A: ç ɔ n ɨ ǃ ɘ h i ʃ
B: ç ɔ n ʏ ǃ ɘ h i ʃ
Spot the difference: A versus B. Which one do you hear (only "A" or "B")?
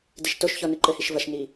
A